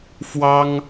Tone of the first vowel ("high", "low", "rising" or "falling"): high